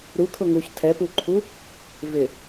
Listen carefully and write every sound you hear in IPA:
ɾukʰʊ ŋuç tʰɛpuǃʰu | vɪ

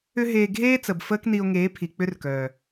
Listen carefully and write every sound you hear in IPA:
ʏ˦ɦeː˧ ɡʱeː˦ t͡sə˨bfəː˦kni˧o̯ŋeː˨˦ pʰi˨k͡pʏ˦rkœː˨

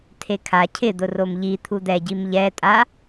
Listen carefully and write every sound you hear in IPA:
tʰekʰa cʰɪ d̪ʊromʎi t̪ʰud̪ɛ ɟimʎɛtʼa

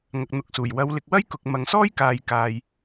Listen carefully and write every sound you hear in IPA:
ŋɐ˨k̚n̪ʊ˨˥k̚suː˨˩j wɐ˨˧wlɪ˨k̚ wɐ˥jkʊ˨k̚ mɐ˨ŋsɔː˥jkaː˨j kaː˨j

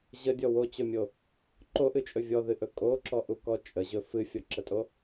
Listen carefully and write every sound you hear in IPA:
ʑədʲɔ wot͡ɕɵmʲo | ǃoʔɨt͡ʃʼɵ vʲɔðɨʔɵ kʼoǁɔʔukɔ t͡ʃʼəʑɵ fɨfʲɔǁətʼo

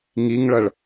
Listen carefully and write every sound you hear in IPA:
ŋiŋɭʌɭ

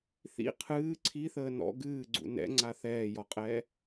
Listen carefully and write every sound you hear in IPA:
θḭ qʰɨː ǀʰiθəː nɔ̰ ɡɨːɡ͡ǀṵ nɛ̰ŋ͡ǀa θɛːjɔqʼɛː

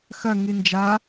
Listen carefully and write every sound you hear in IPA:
xɐ ŋind͡ʒa

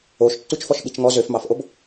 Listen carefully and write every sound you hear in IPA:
oʃtːut͡ʃfɔʃ ɓit͡ʃŋɔ zøfmɑfʔob

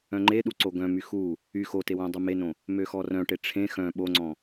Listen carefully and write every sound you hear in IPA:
œ̃ŋ͡ǃeɗu ǀoɡœ̃my xu | y xote wõdˤumenõ | møxɔrœ̃ʈe ʈ͡ʂʰẽ xœ̃ ɓoŋ͡ǀɔ̃

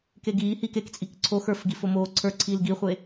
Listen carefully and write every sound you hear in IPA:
keɡiːhiːk ekt͡sʼik ǀʰox ə˞fɡif omoːǀʰə˞ǀʰiːl ɡiχʷe

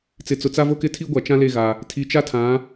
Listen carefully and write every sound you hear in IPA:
t͡sɪ˨t͡sʊ˨t͡sa˦vo˦ kɪ˦tʰi˦ɡʷa˨ t͡ʃã˦le˦˨ɣa˨ | tʰi˨t͡ʃa˦tʰã˨˦

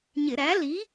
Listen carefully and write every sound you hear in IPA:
ɲɪ˧˩˧ɾæ˨˥ li˨˥

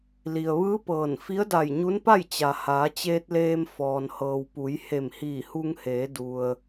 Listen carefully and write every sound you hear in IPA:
li˩ə̯ʋɯː˧˥ pɤː˧˩n fi˧˥ə̯da˧˩jɲu˧˥npa˥˨j t͡ɕa˩haː˩˧t͡ɕeː˧t̚ leː˧m fɔː˩nhɤː˩wpu˩˧j he˧˩mhiː˧˩hu˧ŋheː˩˧ du˩ə̯

